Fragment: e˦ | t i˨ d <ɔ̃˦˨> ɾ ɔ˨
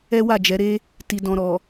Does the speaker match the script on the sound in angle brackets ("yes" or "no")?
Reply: no